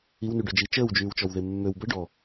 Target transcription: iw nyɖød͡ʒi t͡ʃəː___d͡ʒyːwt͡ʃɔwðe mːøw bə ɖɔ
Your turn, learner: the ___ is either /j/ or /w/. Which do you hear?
w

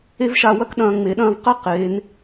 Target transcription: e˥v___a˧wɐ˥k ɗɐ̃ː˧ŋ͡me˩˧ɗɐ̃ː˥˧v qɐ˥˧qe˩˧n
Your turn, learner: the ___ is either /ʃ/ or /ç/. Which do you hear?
ʃ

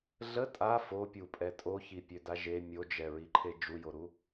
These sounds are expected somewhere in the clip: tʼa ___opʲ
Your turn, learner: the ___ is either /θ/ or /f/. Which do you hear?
f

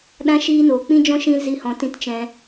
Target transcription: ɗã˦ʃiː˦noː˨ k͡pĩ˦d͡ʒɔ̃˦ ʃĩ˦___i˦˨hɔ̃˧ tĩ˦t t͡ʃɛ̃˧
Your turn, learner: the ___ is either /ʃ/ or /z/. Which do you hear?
z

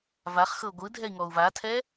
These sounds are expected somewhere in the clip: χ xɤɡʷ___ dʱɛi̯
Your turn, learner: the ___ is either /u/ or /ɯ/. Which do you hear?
ɯ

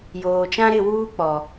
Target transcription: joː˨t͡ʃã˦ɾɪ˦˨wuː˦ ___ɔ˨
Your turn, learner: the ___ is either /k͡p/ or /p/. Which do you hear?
k͡p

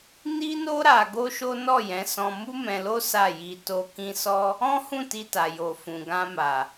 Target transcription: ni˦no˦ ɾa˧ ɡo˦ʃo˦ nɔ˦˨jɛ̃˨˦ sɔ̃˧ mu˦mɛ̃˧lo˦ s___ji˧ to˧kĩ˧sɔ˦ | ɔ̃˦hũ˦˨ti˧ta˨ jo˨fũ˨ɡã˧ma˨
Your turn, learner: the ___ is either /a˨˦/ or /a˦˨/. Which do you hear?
a˦˨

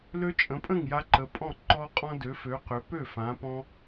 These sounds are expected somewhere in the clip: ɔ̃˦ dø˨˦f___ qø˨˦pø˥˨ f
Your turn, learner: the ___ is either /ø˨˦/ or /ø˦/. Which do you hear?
ø˨˦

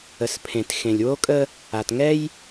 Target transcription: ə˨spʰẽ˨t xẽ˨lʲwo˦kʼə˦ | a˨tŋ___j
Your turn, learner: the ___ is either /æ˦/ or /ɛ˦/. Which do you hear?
ɛ˦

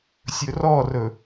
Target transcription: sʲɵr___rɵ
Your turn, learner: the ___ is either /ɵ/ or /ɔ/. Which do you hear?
ɔ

